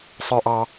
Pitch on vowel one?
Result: low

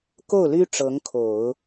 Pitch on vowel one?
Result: falling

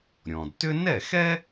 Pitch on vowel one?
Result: low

